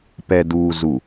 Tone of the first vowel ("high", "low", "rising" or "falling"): low